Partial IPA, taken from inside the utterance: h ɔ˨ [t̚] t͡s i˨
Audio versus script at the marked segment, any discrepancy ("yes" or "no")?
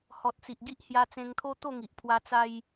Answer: no